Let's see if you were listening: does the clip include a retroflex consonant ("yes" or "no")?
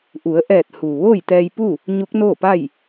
no